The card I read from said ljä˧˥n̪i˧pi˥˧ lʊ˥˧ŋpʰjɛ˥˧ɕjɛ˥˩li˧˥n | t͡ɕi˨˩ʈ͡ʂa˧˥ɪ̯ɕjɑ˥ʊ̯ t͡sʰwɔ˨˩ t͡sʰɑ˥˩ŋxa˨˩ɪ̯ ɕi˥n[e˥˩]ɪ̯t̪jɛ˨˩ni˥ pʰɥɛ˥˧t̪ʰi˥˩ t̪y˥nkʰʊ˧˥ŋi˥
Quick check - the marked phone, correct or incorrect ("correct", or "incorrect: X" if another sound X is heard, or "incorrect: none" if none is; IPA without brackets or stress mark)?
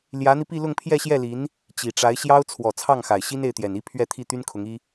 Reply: correct